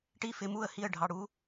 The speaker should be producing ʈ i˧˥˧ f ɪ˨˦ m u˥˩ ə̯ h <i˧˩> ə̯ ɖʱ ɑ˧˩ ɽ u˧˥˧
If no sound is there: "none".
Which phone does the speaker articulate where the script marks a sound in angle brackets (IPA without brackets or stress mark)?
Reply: i˥˩